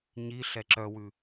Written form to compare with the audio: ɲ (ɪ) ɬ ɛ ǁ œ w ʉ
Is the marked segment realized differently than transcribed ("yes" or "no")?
yes